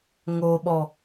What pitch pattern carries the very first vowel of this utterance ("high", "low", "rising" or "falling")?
low